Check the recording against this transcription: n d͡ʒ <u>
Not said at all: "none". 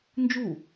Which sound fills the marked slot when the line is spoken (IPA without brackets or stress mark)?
u